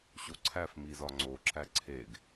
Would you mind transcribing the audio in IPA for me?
ɕ o ǀʰ æ f m i z ɒ ŋ͡ǀ o ǁ æ ǀʰ e ɡ

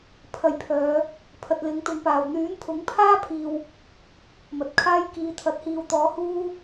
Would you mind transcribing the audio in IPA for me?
pʰ ɐ˨ j pʰ œː˨˧ | pʰ ɐ˨ t̚ l ɪ˨˥ ŋ t̪ ʊ˨˥ ŋ p aː˨˩ w n̪ yː˨˥ n pʰ ʊ˨˥ ŋ pʰ aː˥ pʰ iː˨ w | m ɐ˨ t̚ kʰ aː˥ j k iː˨˧ t̪ʰ ɐ˨˥ t̚ h iː˨ w t̪ ɔː˨˥ h uː˥

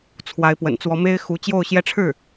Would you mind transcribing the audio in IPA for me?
t͡sʰ w a˧˥ ɪ̯ p w ə̰˨˩ n t͡s w ɔ˧˥ m e˥ ɪ̯ x u˧˥ t͡ɕ j o˥˧ ʊ̯ ɕ j ɛ˥˧ ʈ͡ʂʰ ɻ̩˥˩

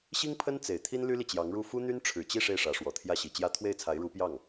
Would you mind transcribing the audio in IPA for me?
ɕ i˥ ŋ pʰ ə˥ n t͡s e˨˩ ɪ̯ t̪ʰ i˥ n l y˥ l i˨ t͡ɕ j ɑ˧˥ ŋ ɻ u˥˩ f u˥ n̪ y˥ n ʈ͡ʂʰ ɻ̩˨˩ t͡ɕ i˥˧ ʂ e˥˩ ɪ̯ ʂ ä˧˥ ʂ w ɔ˨˩ t̪ʰ j ä˥˩ ɕ i˨˩ t͡ɕ j ä˥ t̪ʰ w e˥˩ ɪ̯ t͡sʰ a˧˥ ɪ̯ ɻ u˧˥ p j ɑ˥˩ ŋ

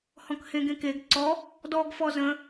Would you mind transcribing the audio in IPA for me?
h ɔ̃ k h ẽ ɡ ẽ k e ɡ ǀ ɔ | d ɔ ɡ f ɔ z ə̃

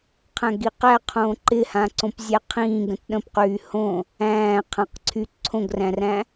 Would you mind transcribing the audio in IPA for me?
qʰ æ̃ ɡ i q æ qʰ õː ǃ ɪ h ã ǀ õ p zʲ æ qʰ ĩː ɡ ə̃ t ɗ ə̃ p q yː h õ | æ̃ː qʰ ã q ǀʰ y ǀʰ õ ɡ r æ̃ r æ̃

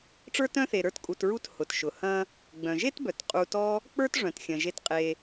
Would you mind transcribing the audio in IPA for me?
ʈ͡ʂ ə˞˥ t œ̃˥ θ e˨ ɾ ə˞˦ t kʼ u˨ t ɹ u˦ t h ʊ˩ t ʃ ʊ˩ h ɐ̃˥ | ɡ͡b œ̃˩ ʒ e˥ t b œ˩ t qʼ u˨ t ɔ˦ | k͡p ə˞˥ t ʐ œ̃˩ t xʲ ɐ̃˩ ʒ e˨ t qʼ e˩

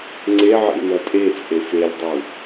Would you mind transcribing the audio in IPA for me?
ŋ͡ǀ e ʕ ḭ n ɐ tʼ e t͡sʼ e f e lʲ dˤ u

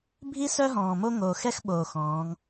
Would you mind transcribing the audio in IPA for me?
bʱ i˦ s œ˦ ɦ ɔ̃ː˨ m o˦ ŋ oː˨ x ɛ˦ x ɓ oː˨ x ɔ̃ː˨˦ ŋ

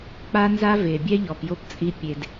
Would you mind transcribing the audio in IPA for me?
k͡p a˦ n z a˦ v e˨ bʲ ɛ˦ ʎ ɔ˨ p j o˦ p t͡sʼ i˦ pʲ e˦ d

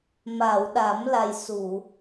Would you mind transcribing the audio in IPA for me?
m a˨˩˨ w ɗ a˨˩˦ m l a˨˩ j s u˨˩˨

